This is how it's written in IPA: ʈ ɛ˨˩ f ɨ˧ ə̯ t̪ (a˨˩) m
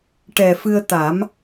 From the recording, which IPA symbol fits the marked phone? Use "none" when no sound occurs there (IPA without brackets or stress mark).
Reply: a˨˩˦